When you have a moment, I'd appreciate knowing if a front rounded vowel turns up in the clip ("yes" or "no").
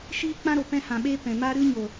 no